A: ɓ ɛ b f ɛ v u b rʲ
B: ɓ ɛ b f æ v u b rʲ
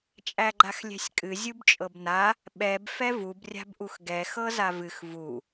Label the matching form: A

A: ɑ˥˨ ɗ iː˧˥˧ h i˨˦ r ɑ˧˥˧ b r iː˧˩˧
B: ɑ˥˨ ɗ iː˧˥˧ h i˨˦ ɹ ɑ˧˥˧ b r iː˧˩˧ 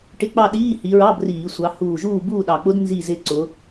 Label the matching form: B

